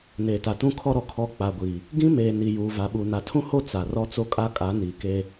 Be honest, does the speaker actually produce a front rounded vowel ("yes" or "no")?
no